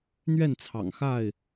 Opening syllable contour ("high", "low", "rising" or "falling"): falling